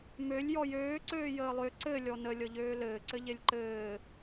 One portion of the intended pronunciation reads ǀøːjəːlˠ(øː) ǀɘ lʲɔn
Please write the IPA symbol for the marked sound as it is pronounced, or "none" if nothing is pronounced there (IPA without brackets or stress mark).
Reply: ø